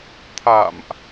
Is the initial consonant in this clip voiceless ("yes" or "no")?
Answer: yes